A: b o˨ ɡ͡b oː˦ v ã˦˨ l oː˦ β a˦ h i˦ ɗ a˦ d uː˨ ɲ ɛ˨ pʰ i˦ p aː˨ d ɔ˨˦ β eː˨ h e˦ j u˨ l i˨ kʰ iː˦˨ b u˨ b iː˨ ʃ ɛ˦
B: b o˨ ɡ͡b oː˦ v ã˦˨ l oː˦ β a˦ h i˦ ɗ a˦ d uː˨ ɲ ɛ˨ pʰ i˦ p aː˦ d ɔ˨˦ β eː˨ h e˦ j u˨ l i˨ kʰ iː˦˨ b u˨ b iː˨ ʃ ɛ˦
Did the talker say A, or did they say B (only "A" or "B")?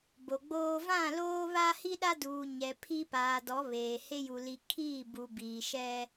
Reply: A